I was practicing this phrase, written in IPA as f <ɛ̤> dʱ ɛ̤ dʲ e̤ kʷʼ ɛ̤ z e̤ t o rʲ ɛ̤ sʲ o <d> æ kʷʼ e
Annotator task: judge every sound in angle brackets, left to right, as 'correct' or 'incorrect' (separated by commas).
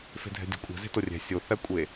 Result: incorrect, incorrect